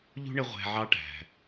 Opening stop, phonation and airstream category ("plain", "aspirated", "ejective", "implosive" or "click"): plain